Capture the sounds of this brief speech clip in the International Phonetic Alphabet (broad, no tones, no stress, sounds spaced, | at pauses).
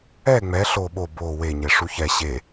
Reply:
ɛ ŋ͡m ɛ ɬ o ɓ o b o w e ɲ e ʂ u ç ɛ ɕ e